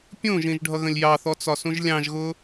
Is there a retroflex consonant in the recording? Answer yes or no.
yes